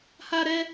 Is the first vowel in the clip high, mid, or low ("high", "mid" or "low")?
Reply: low